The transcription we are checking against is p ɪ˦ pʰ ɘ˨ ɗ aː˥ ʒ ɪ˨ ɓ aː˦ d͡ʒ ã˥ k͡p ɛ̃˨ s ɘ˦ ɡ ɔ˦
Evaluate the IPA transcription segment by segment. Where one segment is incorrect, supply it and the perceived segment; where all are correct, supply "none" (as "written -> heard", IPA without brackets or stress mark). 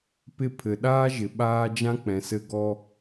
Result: none